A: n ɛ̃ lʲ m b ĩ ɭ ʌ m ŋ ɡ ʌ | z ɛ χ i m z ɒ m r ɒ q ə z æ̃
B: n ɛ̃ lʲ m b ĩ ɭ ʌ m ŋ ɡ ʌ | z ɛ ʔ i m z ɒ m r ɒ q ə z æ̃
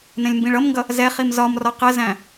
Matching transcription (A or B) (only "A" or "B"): A